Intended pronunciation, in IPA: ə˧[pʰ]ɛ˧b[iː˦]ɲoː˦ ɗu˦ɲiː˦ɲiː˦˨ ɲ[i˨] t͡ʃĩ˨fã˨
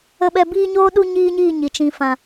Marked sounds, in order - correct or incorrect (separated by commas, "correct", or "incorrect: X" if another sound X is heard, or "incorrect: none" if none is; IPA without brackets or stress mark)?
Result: incorrect: ɓ, correct, correct